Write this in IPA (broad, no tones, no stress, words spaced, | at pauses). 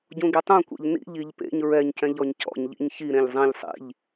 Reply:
ɟũɡitˤũkʷḛʎ nḭʎiʎ pḛɲ ɹɛɲcɛ̃ʎ ɔɲcɔ̰ɲʎḭɲ çiɾẽʎ zˤẽʎ sˤḭʎ